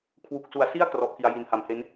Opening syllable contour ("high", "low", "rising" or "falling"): low